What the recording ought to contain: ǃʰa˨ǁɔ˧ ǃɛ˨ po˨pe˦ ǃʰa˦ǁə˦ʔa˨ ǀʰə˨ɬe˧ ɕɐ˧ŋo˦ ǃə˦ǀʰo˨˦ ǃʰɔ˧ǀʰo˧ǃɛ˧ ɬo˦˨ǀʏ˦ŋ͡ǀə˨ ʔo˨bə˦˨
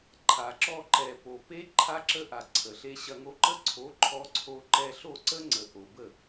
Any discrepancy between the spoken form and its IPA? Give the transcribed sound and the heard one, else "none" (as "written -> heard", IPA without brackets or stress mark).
ʏ˦ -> ə˦